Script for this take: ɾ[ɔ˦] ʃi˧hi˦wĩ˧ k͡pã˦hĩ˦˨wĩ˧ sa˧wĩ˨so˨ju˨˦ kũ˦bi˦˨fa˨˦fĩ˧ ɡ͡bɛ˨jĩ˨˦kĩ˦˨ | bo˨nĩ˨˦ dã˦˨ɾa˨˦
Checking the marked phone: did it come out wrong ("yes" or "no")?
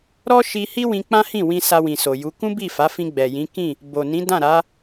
no